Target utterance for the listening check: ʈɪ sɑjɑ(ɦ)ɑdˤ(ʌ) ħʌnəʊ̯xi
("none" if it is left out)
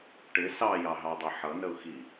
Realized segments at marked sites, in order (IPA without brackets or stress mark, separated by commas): ɦ, ʌ